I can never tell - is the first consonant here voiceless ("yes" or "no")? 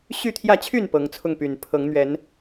yes